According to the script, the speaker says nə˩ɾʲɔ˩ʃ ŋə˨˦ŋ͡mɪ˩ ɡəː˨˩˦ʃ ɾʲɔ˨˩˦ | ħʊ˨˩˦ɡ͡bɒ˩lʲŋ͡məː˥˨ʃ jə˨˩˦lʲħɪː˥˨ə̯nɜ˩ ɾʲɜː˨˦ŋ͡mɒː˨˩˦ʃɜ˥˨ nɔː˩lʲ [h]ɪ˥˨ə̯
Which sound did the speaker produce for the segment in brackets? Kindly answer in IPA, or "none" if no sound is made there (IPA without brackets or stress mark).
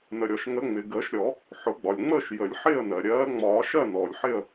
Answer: ħ